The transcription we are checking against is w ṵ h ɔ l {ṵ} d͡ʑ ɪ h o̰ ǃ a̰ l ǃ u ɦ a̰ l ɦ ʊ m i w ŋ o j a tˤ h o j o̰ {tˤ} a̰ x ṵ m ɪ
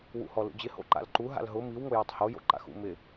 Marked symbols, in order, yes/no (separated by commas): yes, no